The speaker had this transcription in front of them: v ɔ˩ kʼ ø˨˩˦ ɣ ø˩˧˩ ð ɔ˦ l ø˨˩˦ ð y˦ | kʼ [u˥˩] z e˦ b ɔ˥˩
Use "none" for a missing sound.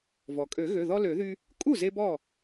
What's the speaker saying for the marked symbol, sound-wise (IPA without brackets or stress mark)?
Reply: u˥˩